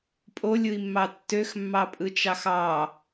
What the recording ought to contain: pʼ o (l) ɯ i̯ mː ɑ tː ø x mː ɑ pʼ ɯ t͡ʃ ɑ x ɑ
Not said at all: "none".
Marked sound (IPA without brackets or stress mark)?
lʲ